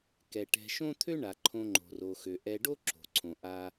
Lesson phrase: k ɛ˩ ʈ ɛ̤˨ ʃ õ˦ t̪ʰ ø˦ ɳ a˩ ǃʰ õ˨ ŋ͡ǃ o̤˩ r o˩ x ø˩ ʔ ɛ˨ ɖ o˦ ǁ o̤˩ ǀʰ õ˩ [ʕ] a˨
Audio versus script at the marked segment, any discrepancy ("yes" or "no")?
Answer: yes